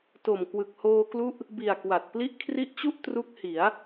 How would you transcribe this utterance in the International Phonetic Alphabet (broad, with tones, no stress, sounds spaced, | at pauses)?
t o˨˩ m k w ɯ˨˩ k̚ h oː˧ k l u˦˥ ʔ | b i˨˩ a̯ k w a˨˩ t̚ p l i˦˥ ʔ kʰ r i˦˥ ʔ t͡ɕ u˥˩ ʔ t r u˦˥ k̚ h i˩˦ a̯